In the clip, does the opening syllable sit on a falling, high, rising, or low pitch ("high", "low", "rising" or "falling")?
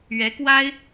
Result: rising